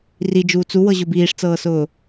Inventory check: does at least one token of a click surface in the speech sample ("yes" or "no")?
no